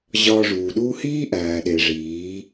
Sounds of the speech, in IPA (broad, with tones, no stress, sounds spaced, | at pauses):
ʑ ɒː˧ ʐ uː˨ ɗ uː˦ h iː˦ ʔ æː˨ ɗ e˨ ʐ iː˨˦